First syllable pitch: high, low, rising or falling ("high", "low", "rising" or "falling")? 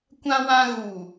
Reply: high